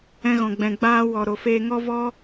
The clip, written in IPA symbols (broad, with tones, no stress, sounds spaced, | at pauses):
ɛ̃˧ ɣ ɔ̃˨ ɡ͡b ɛ̃˨ ɡ͡b aː˧ w ɔ˨ ɾ o˨ f eː˧ ŋ ɔ˦ v ɔ˦